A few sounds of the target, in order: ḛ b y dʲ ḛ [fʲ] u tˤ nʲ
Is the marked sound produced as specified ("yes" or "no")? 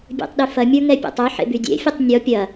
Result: yes